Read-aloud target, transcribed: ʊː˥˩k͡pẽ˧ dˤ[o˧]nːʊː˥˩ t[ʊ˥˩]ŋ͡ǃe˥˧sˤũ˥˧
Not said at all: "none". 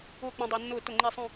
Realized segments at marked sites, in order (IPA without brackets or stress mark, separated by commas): o˧, ʊ˥˩